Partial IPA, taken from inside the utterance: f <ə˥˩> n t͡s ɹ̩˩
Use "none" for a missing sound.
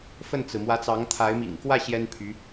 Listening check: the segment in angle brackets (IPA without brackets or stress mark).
ə˥˩